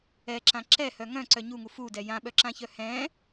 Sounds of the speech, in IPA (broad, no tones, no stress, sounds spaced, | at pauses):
ɛ ǁ ã ǁ ɛ h œ ŋ œ̃ ǀ œ ɲ u ŋ u f u d ɛ j ã ɓ œ ǁ ã ç œ h ɛ̃